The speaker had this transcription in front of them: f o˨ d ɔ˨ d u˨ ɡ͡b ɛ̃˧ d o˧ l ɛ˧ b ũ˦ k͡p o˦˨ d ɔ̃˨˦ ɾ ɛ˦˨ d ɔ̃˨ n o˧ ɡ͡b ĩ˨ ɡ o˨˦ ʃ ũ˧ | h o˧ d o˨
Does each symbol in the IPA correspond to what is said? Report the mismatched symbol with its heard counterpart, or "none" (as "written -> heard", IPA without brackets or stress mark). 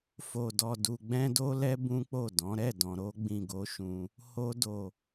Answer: n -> ɾ